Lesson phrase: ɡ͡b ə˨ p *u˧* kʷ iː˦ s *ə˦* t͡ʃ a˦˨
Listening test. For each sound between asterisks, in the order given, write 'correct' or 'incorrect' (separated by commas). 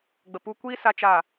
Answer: correct, incorrect